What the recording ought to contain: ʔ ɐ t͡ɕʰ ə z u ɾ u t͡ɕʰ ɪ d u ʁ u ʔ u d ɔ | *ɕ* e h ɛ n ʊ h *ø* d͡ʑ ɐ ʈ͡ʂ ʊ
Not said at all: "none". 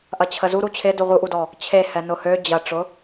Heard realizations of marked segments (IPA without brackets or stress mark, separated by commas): t͡ɕʰ, ø